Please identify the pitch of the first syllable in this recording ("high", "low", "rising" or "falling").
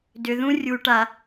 low